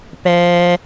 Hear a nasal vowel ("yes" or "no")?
no